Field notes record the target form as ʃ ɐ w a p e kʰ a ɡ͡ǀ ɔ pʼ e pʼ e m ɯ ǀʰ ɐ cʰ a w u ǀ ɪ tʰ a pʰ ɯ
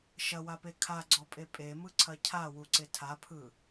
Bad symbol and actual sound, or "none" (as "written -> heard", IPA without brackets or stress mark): none